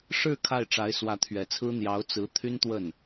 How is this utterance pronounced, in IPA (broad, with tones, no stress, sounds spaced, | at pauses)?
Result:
ʂ ɻ̩˥˧ kʰ a˥˩ ɪ̯ ʈ͡ʂ a˧˥ ɪ̯ s w ä˧˥ t̪ʰ ɥ ɛ˨˩ t͡sʰ ɹ̩˥ n̪ j ɑ˧˥ ʊ̯ t͡s ɹ̩˧˥ t̪ʰ y˥ n t̪ w ə˥˩ n